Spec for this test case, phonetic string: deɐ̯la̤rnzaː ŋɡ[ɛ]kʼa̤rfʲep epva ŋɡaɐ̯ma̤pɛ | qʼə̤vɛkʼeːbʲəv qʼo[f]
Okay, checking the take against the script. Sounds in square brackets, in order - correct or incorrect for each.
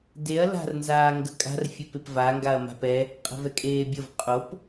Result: incorrect, incorrect

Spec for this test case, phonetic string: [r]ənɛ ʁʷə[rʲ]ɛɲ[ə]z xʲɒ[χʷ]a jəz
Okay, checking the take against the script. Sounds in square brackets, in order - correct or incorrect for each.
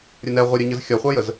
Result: incorrect, incorrect, correct, correct

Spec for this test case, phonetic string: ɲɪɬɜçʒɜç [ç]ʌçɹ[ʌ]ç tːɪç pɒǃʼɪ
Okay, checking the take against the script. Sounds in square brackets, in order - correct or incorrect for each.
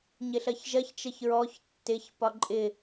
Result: incorrect, incorrect

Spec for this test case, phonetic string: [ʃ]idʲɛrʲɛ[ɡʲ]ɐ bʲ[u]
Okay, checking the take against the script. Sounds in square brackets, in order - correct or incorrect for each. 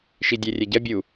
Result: correct, incorrect, correct

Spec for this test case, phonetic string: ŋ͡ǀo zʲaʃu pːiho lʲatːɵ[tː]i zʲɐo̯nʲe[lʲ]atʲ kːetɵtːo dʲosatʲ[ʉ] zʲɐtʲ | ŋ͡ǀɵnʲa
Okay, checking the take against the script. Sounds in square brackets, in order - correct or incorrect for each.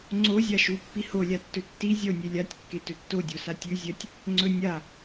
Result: correct, correct, correct

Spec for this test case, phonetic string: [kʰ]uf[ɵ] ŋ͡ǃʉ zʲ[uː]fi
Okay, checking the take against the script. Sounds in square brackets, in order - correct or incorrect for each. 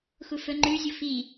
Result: incorrect, correct, incorrect

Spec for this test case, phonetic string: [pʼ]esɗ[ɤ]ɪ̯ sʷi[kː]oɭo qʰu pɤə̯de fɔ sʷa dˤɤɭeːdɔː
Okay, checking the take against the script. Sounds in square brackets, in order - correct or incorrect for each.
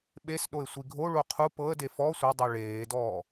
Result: incorrect, incorrect, incorrect

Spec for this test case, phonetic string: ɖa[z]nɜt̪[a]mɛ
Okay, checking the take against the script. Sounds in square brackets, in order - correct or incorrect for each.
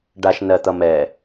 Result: incorrect, incorrect

